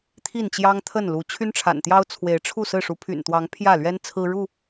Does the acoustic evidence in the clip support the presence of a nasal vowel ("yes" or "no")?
no